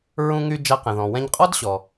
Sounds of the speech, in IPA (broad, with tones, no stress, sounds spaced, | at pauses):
ɹ ũ˧ ŋ y˧ d͡ʒ a˧ q ɛ̃˩ ð ɔ̃˩ w ɛ̃˧ ɲ qʼ ɔ˥ d ɕ ɔ˩